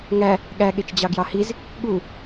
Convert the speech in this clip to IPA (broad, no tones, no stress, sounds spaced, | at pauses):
ŋ æ | ɠ æ ɠ e t͡ʃ d͡ʑ ɑ ɡ j ɑ h i z | ɠ u